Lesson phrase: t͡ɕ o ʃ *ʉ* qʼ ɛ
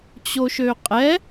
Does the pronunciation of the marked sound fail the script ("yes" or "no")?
yes